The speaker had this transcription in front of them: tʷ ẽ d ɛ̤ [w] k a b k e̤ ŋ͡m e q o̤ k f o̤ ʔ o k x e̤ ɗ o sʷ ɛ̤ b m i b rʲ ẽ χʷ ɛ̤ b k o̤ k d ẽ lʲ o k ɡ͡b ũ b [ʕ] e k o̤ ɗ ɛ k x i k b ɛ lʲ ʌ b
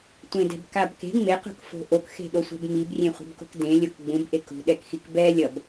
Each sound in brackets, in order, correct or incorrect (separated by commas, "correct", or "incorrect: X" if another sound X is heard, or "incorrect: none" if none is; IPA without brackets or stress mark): incorrect: b, incorrect: ʔ